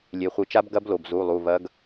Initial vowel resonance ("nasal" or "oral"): oral